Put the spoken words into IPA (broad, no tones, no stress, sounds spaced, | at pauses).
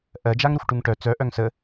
ʔ ɜ d͡ʒ a ŋ ɾ u x ʈ u ŋ ʈ œ t͡s œ ʔ œ ŋ s ə